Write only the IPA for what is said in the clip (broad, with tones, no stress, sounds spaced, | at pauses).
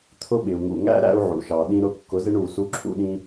t̪ʰ ʊ˦ ɓ ɪ˨ u̯ ŋ ṵ˨ ŋ æ̰˦ ɾ æ̰˦ u̯ ʕ ṵ˨ ʃ ɑ˨ ɗ ĩ˧ ɾ ʊ˧ kː ʊ˨˦ z ɪ˦ ɳ u˨ s u˧ ǁʰ ṵ˧ ɗ ĩ˦